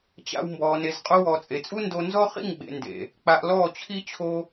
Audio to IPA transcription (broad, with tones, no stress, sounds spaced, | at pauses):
t͡ɕ a̰˧ w m b ɔː˨ n e˨ z qʼ o˧ w ɔː˨ t͡sʼ e˨ t͡sʼ u˦ n d o˧ n z ɔ˦ χ ḭ˦˨ ŋ ɡ͡b ḛ˨ n d ḛ˨ | k͡p a˧ ʔ l ɔː˦˨ t͡ɕʰ i˦ t͡ɕʰ o˦